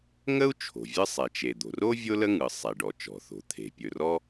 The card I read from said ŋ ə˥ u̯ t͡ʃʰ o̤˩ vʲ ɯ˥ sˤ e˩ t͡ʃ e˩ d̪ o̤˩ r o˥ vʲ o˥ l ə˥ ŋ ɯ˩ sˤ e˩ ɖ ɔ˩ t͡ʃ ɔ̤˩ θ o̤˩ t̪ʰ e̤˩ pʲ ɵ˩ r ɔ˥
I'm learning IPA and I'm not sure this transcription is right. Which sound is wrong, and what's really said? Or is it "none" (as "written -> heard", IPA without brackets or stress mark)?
none